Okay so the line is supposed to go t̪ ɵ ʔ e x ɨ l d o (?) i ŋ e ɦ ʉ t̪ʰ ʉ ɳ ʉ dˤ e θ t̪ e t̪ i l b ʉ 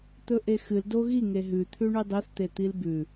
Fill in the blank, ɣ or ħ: ɣ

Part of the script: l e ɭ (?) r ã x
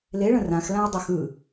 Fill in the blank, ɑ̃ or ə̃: ə̃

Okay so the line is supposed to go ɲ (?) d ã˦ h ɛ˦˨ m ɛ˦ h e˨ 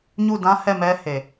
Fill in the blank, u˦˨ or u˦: u˦˨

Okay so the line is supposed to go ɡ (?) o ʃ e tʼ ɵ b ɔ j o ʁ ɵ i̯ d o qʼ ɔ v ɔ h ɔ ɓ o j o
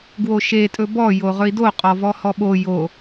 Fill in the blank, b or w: w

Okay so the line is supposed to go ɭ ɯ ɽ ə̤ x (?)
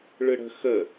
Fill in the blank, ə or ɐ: ə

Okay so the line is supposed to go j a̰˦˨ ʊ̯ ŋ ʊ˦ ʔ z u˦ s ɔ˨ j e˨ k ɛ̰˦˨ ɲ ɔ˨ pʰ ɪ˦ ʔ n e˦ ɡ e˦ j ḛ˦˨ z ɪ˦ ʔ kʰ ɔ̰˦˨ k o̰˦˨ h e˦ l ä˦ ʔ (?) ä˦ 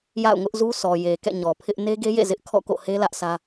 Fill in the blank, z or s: s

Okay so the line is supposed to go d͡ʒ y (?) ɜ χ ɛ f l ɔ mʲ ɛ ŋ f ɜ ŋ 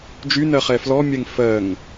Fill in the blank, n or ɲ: n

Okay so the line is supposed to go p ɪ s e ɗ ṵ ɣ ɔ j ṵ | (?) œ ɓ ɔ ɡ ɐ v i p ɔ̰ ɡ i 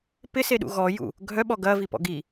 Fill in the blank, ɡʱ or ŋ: ɡʱ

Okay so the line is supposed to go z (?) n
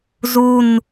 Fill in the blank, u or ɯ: u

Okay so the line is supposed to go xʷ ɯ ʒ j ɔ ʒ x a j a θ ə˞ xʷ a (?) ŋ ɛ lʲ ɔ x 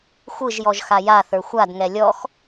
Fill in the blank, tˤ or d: d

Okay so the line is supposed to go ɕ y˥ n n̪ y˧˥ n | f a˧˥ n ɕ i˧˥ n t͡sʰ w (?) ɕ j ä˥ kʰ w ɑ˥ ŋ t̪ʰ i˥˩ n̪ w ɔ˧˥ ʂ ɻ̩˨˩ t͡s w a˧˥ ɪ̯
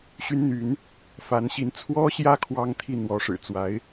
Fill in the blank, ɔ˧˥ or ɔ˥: ɔ˥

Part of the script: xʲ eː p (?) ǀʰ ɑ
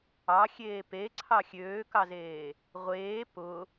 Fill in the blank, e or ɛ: e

